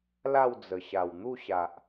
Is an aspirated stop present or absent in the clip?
absent